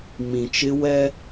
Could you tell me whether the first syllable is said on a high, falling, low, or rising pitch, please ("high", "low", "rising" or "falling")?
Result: low